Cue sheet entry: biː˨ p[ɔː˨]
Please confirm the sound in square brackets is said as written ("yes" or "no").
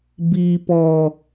yes